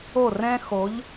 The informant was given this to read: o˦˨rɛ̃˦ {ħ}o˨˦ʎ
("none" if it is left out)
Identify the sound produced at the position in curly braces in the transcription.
x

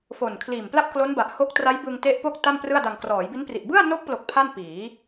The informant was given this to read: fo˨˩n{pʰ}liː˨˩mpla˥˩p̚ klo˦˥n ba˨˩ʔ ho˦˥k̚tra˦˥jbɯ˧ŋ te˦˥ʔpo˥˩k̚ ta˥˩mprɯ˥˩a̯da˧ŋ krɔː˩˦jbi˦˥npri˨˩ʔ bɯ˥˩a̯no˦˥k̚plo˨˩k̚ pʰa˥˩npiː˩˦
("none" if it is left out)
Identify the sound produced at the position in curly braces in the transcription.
kʰ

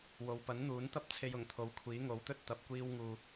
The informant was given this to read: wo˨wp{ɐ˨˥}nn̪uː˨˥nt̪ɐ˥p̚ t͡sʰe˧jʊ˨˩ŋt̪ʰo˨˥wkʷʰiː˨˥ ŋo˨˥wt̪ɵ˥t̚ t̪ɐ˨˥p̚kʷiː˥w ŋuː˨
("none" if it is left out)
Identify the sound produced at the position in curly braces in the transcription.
ɐ˨˥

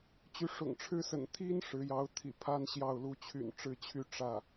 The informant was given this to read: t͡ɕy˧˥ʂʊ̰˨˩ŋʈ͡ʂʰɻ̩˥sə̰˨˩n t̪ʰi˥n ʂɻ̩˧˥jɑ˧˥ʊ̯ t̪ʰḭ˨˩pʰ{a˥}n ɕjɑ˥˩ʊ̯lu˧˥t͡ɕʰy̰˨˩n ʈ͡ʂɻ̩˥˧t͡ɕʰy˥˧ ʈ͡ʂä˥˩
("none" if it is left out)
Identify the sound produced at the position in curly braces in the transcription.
a˥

